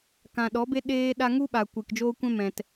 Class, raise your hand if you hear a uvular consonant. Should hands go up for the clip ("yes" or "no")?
no